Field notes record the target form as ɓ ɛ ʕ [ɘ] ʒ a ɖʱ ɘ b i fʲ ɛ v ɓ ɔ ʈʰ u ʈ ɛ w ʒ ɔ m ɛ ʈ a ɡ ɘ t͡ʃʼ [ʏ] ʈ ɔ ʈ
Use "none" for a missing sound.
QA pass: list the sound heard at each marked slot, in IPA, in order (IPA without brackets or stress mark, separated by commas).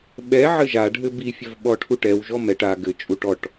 ɘ, u